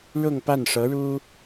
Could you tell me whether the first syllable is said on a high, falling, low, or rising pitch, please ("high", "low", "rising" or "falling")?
falling